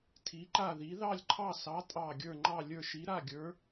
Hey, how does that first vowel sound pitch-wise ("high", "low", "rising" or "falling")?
rising